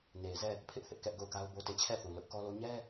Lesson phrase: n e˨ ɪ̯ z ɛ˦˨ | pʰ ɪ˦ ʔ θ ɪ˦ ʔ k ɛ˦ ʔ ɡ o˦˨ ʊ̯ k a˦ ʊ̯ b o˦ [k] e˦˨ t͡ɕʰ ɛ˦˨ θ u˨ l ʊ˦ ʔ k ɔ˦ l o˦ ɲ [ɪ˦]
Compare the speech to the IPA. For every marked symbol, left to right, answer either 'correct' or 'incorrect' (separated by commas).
incorrect, incorrect